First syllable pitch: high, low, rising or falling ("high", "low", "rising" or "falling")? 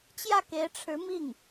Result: falling